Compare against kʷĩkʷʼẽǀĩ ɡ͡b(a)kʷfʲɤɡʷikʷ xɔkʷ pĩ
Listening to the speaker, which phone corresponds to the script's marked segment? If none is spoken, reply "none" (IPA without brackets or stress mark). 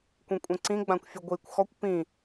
ã